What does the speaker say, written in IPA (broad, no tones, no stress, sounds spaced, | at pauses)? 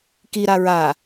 k i ɾ a ɹ a